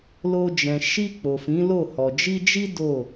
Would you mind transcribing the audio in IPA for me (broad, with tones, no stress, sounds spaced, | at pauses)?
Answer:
l o˧ d͡ʒ ɛ̃˨ ʃ i˧ k͡p o˨ f ĩ˨˦ l o˦˨ h ɔ˨ d͡ʒ i˧ d͡ʒ i˦ d o˦˨